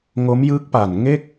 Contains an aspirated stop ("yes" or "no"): no